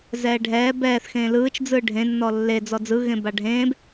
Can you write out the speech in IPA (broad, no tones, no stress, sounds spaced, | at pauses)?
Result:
z ɛː ɖʱ ɛː b ɛː θ x ẽː l ɯː t͡ʃ d͡z ɯː ɖʱ ẽ nː ɔ lː e d͡z ɔ d͡z ɯ ɣ ẽ b a ɖʱ ẽː b